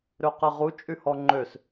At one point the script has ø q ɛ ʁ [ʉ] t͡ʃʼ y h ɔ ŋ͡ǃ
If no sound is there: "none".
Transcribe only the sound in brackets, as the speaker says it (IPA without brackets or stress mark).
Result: u